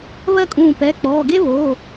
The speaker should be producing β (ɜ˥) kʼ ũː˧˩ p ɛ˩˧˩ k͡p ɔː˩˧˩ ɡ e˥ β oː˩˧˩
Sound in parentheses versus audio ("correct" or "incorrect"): correct